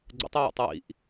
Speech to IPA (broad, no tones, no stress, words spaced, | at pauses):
ɡ͡ǀə̰tˤiwɛ̰tˤ wḭʔ